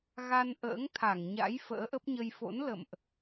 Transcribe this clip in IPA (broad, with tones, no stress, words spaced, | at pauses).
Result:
ɣa˧n ʔə̰ː˧˥ŋt̪ʰa˧˩ŋɲa̰˧˥j fə̰ː˧˥ʔə˦˥p̚ɲə˧j fo̰˧˥n lə̰˧˨mʔ